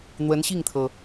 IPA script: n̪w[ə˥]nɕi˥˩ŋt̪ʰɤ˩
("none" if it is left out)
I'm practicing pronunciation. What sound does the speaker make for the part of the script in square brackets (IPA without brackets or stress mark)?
ə˧˥